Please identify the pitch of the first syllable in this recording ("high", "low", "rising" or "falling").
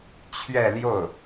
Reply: falling